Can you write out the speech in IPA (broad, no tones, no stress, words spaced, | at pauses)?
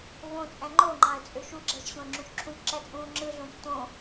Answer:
võt͡sʼæ̃ ŋ͡ǃoŋ͡ǃɑ̃ə̯t͡sʼø ʃuɡ͡ǁæʃɕõə̯ŋ͡ǁũʃ ǁʰũkʷǁæt͡sʼũː ŋ͡ǁɯɮõç tõ